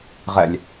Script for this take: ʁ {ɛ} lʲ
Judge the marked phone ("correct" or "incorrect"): correct